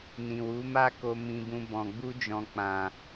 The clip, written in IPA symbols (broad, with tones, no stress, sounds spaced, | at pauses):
n ĩ˨ w u˨˦ m a˦ k o˧ m ĩ˧ b ũ˧ b ɔ̃˨ ɡ͡b u˧ d͡ʒ ɔ̃˨ k͡p ã˨